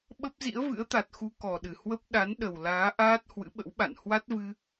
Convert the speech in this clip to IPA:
ɓ ə˦˥ p̚ z ḭ˧˥ ə̯ v ɨ̰˧˥ ə̯ t̪ a˨˩ t̚ x u˧ k ɔ˨˩ ɗ ɨ˧˩ h w ə˦˥ p̚ ɗ a˨˦ n ɗ ə˨˩ w l aː˨˦ ʔ aː˦˥ t̚ h w ɨ̰˧˥ ɓ ə̰˧˥ w ɓ a̰˧˨ n h w a˦˥ t̚ v ɨ˧

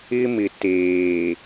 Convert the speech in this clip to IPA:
ɪ˦ m ɪ˨ t eː˨

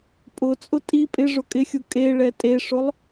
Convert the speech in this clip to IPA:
pʼ ʊ t͡sʼ ʊ tʼ i pʼ ɪ ʐ ʊ kʼ ɪ xʲ u kʼ e ɭ ɛ tʼ e ʂ ʊ lˠ

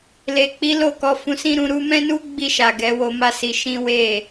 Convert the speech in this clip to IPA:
l e˨ k͡p i˨˦ l o˦˨ k ɔ˨˦ f ũ˧ s ĩ˦ ɾ ũ˧ ɾ u˦ m ɛ̃˦ n u˦ ɡ͡b i˦˨ ʃ a˨ ɡ ɛ˨˦ w o˧ m a˦ s i˧ ʃ ĩ˦ w e˦˨

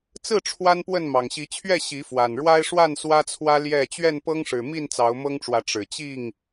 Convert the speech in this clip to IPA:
t͡s ɹ̩˥˨ ʈ͡ʂʰ w a˦ n p w ə˥˨ n m ɑ˨˩ ŋ ɕ i˨˦ t͡ɕʰ ɥ ɛ˥˨ ɕ i˨˦ f w a˨˩ n ɻ w a˦ ɪ̯ ʂ w a˥˨ n s w ä˦ t͡sʰ w ä˦ l j ɛ˥˨ t͡ɕ ɥ ɛ˥˨ n p ɤ˦ ŋ ʂ ɻ̩˨˩ m i˥˨ n t͡s ɑ˨˦ ʊ̯ m ɤ˦ ŋ ʈ͡ʂ w ä˨˦ ʈ͡ʂ ɻ̩˨˩ t͡ɕ i˥˨ ŋ

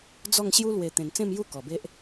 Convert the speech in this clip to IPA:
d͡z ɔ˥˧ ŋ ɕ j u˦ l w e˨˩ t̪ ẽ˨˩ n t͡s ẽ˥˧ m j u˦ k ɔ˨˩ b e˦ ʔ

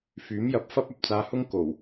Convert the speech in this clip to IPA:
f yː˨˥ m j ɐ˨˥ p̚ f ɐ˥ p̚ ɐ˨ p̚ t͡s aː˧ h ʊ˥ ŋ k o˨˩ w

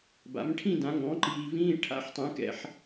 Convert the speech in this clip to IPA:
b a̰˩˥ m ʈʰ ĩ˥˧ d ã˩˥ ŋ ɔ̃˩˥ ǃ iː˨ v ĩː˧˥˧ ʈʰ a̰˧˥˧ ħ tˤ ɛ̃˩˥ k ɛ̰˨ ħ

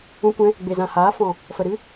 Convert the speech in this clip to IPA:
ũ˧ kʷ ɛ̃˧ | ɡ͡b e˨ z ã˨ h aː˨˦ f ɔ̃˨ | f ə˨ ɾ ɨ˦

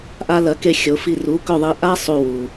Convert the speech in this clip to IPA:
ʔ a˧ l ɐ˩˥ k e˧ xʲ o˩˥ f i˥˩ r u˩˥ k ɵ˥˩ ðˤ i˧ ʔ a˥ sˤ u˧ w u˩

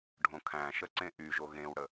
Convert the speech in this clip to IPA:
ɖʱ õ kʰ æ̃ ʃ ə ǀ ẽ ʔ y ʒ o ɣ ẽ w ɽ ə

